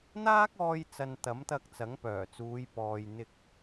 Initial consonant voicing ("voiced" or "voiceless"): voiced